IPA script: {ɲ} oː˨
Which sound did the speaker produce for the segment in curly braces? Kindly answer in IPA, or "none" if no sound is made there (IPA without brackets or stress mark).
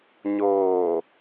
ɲ